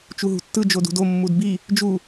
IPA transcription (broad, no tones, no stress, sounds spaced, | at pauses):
t͡ʃ u ɦ ṳ tː ɯ d͡ʒ o d ṳ d o mː u d b i | d͡ʒ u